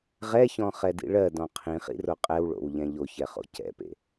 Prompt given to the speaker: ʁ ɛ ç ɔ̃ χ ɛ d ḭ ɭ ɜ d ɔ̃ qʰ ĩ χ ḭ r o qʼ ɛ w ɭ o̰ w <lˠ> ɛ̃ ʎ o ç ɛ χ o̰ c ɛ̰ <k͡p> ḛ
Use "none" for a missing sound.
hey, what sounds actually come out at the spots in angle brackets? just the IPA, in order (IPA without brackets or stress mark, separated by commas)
ʎ, p